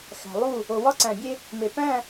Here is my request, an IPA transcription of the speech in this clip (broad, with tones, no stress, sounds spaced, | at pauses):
x æ̤˨ lˠ u˦˨ | o˨ w ɒ˦ ǀ æ̃˨ bʲ e˦ | m e˨ p æ̃˦˨